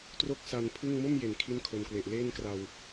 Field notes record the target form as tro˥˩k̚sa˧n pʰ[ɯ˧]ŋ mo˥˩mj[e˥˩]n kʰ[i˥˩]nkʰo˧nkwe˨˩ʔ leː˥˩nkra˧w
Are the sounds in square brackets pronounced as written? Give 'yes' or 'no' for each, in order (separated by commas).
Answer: no, no, yes